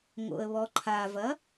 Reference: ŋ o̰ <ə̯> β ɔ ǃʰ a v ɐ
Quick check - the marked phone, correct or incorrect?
correct